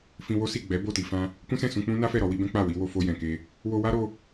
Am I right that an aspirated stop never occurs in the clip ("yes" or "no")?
yes